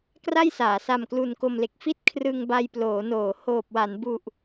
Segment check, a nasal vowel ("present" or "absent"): absent